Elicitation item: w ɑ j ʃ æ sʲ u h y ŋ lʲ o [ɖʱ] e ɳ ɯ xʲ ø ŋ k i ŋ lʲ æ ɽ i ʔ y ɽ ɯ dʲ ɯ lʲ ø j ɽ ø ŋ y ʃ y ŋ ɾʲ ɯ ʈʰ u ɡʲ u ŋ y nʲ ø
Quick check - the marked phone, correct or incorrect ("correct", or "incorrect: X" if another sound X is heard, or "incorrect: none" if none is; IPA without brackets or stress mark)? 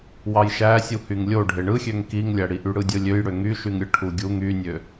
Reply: correct